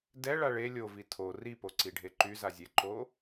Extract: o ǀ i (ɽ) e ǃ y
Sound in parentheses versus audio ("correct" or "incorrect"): incorrect